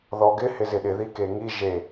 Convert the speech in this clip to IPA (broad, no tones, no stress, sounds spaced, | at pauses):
ð ɔ ɡ ɪ h ɪ z ɪ ɗ ɪ ð i k e ŋ i ʒ e